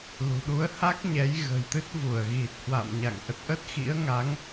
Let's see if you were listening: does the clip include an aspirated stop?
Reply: no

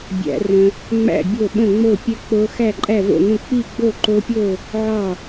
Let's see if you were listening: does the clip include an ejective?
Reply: yes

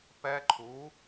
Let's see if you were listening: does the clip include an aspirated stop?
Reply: yes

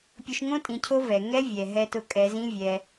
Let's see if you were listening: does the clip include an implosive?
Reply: no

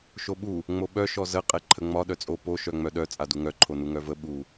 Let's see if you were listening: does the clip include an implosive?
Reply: yes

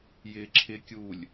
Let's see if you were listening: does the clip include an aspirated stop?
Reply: yes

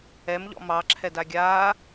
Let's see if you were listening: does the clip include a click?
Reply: yes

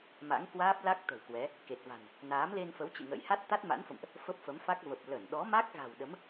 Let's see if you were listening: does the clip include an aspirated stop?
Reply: no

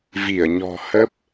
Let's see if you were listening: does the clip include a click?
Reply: no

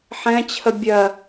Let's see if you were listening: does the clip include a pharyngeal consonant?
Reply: yes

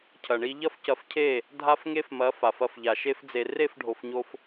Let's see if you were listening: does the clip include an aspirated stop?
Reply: yes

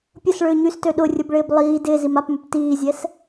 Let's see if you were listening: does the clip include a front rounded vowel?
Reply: yes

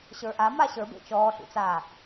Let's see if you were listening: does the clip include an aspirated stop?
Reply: no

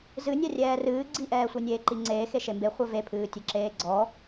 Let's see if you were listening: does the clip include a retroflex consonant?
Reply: no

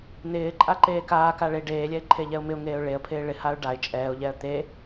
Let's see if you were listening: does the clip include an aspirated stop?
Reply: yes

